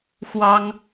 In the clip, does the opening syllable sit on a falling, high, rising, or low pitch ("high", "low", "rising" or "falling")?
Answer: high